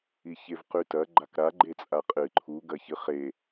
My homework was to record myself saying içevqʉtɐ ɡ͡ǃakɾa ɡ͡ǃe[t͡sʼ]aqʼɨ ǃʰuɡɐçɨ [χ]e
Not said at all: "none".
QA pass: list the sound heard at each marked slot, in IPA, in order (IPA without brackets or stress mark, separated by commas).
t͡sʼ, χ